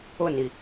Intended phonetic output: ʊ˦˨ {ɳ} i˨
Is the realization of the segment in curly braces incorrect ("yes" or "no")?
yes